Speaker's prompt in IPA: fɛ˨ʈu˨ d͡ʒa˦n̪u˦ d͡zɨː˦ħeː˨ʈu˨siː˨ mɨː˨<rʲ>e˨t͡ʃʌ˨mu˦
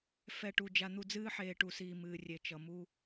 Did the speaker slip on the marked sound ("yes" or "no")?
no